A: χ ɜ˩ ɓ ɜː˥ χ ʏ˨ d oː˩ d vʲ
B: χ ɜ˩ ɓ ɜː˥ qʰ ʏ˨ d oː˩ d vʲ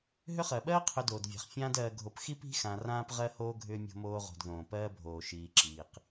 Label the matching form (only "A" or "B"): B